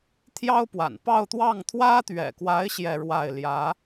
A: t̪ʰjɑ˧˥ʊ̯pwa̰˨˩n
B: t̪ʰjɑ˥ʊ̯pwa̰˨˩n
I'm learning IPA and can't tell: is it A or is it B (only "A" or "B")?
B